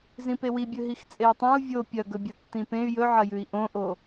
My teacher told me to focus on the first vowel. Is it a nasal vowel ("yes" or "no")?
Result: yes